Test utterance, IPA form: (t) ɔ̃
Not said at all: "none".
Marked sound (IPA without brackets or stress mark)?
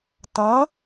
t